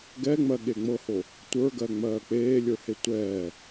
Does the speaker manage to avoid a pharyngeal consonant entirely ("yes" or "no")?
yes